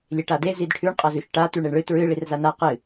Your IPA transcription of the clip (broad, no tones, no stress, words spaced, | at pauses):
lʲeʈade zidʈʰʉɳ qʼɐzʉʃʈa t̪ʉɳeɳɭɨ tɹɨ ɭirzana qɨ